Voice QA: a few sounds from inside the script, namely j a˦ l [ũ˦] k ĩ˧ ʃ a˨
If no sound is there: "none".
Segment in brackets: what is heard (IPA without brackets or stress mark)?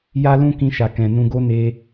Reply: ũ˦